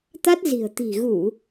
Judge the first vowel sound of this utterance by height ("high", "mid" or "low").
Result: low